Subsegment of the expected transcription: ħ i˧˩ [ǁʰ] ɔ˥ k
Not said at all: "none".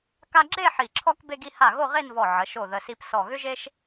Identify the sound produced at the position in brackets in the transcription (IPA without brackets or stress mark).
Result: ǁʰ